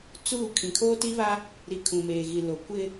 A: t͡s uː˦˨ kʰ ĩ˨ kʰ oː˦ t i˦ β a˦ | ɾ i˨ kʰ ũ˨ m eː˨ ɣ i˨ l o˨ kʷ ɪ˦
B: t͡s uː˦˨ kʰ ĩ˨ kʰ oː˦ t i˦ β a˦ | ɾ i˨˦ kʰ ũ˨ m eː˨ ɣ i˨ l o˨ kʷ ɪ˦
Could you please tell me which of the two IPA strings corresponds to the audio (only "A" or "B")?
B